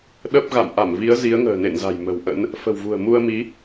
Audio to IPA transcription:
ɗ ə˦˥ p̚ ɣ a̰˧˨ m ʔ a˧˩ m v i˨˦ ə̯ z i˨˦ ə̯ ŋ ə̤ː˨˩ n ḛ˧˨ n z a̤˨˩ j m ə̤˨˩ w ʔ ə̰˧˥ n | f ə̤˨˩ w v ṳ˨˩ ə̯ m u˧ ə̯ m i˨˦

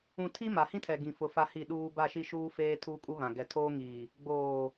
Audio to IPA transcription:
ũ˨ tʰ i˦ m a˨ h ĩ˦ tʰ ɛ˨ ɡ ĩ˨ f ʊ˨ f a˦ h i˦˨ ɗ uː˦ b a˦˨ ʃ i˦ ʃ uː˦ f eː˦ tʰ uː˦ kʼ u˦ β ã˨ ɡ ɛ˨ tʰ oː˦ ŋ iː˨ | ɡ͡b oː˨

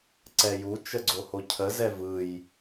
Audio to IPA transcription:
ǀ ɛ j u t͡ʃ ə ɡ͡ǀ o h o cʰ ə z ɛ v ɯ j

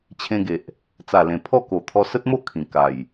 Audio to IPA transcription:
t͡ɕʰ ẽ˧ ɡ e˨ ʔ | t͡s a˨˩ l ẽ˨˩ pʰ ɔ˥˧ k o˨˩ t̪ʰ ɔ˧ s ə˦ t̚ m o˥˧ kʰ ĩ˨˩ k a˨˩ j

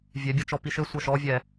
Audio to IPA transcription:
vʲ ɛ bʲ ʌ t͡ʃ ɔ p i ʃ ɘ sʷ ʌ ʃ ɔ vʲ ɛ

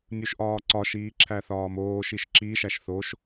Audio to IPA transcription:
nʲ u ʃ ʔ ɒː ǀ ɒ ʃ iː ǁʰ æ θ ɒː m oː ʃ i ʃ ǁ i ʃ æ ʃ θ o ʃ

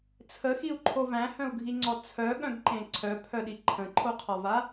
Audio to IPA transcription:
t͡sʰ ə x i u̯ ǃʰ o v æ̃ h œ̃ u̯ ɡʱ i ŋ͡ǀ ɔ t͡sʰ œ ɠ œ̃ ɡ ǃ ẽ ǀʰ œ pʰ œ ɗ i ǃʰ ə̃ ǃʰ o qʰ ɒ v a

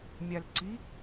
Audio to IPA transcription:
mʲ a l ǀ i

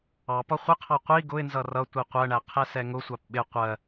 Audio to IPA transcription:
ɑ p ɒ χʷ ɪ qʰ ɑ qʷ i ɡ ʊ ɪ̯ n z ʌ r ʌ tʷ i qʷ ɜ ɳ æ qʰ ɛ s ɛ ŋ ʊ sʷ ɑ p ɓ ɪ qʷ ɜ

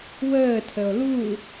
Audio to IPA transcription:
w əː tʰ ə o̯ l u

